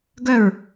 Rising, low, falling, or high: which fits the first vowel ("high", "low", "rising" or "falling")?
falling